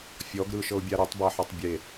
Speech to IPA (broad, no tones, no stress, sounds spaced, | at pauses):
fʲ ɔ ɡ ɾ ɯ ʃ ɤ ʊ̯ bʲ a ɾ o tˤ b a ħ ɔ tˤ bʲ e